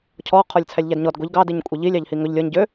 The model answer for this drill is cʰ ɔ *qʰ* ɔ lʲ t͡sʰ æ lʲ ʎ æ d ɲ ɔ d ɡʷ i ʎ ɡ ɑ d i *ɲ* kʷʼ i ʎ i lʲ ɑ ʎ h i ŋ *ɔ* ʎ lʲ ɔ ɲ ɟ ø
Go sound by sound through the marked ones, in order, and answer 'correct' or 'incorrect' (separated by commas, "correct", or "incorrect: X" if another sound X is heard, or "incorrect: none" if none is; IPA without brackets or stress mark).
correct, correct, incorrect: ɵ